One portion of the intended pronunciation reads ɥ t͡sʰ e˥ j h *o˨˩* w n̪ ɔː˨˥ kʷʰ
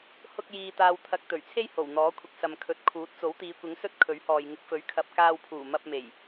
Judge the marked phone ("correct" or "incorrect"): correct